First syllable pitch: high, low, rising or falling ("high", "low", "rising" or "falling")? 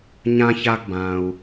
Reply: high